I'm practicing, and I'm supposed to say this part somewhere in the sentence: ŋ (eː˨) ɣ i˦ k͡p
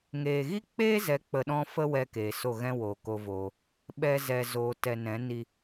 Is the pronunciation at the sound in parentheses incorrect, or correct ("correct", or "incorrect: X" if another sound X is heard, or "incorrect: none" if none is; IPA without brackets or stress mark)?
correct